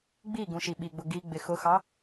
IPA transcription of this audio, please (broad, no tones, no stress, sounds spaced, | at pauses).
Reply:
ɡ͡b i ɡ ũ ʃ i ɓ i ɡ͡b ʊ ɡ i ɡ͡b ɪ x ʊ x ɑ